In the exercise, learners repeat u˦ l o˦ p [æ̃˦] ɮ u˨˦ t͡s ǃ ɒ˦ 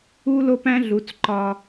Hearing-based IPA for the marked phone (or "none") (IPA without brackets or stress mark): æ̃˦